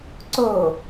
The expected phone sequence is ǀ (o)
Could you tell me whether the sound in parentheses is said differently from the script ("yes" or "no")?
no